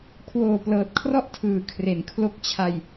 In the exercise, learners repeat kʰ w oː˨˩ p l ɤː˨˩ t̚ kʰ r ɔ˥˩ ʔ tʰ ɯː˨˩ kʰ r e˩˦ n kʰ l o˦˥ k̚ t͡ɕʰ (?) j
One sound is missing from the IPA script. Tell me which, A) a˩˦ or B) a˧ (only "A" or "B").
B